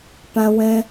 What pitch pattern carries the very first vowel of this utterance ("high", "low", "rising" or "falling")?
high